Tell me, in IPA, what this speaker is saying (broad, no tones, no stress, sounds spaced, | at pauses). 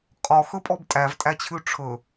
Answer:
qʼ ɔ x ɵ pʼ ɔ b tʼ æ v tʼ æ t͡ɕʰ ʉ ʈ͡ʂʰ ɵ